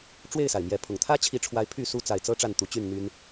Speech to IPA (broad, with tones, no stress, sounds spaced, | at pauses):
ʈ͡ʂ w e˥˨ ɪ̯ s a˩ ɪ̯ m j ɛ˨˦ pʰ ʊ˨˩ ŋ t̪ʰ ä˦ t͡ɕʰ i˨˦ ʈ͡ʂʰ w a˨˦ ɪ̯ pʰ y˥˨ s u˦ t͡s a˨ ɪ̯ t͡s ɤ˦ ʈ͡ʂ a˥˨ n t̪ u˨˦ t͡ɕ y˥˨ n n̪ y˦ n